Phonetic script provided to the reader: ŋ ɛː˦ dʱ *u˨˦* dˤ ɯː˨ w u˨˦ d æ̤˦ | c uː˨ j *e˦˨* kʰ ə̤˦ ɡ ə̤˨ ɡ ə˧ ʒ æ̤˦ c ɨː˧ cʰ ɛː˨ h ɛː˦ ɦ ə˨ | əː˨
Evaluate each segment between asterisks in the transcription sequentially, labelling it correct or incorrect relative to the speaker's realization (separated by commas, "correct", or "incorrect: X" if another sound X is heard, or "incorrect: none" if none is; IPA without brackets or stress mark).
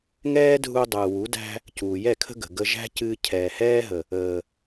incorrect: u˧, incorrect: ɛ˦˨